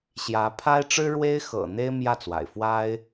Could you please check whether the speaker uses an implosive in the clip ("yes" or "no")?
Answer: no